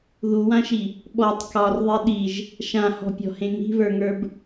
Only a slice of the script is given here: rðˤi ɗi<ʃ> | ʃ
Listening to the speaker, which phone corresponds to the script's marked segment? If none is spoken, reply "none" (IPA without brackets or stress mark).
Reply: ʒ